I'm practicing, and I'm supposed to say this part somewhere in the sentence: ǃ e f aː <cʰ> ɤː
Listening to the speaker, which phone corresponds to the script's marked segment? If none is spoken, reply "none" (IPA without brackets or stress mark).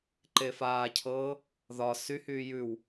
cʰ